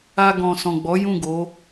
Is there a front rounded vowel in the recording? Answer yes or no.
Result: no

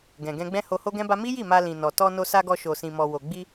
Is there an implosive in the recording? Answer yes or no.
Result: no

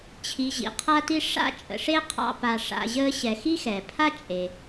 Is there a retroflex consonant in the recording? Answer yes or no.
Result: yes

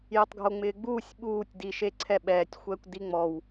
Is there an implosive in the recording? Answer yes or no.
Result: yes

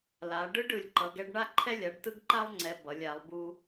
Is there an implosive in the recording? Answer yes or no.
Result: no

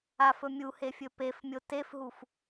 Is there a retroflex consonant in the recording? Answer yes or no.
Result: no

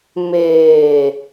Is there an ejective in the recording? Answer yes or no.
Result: no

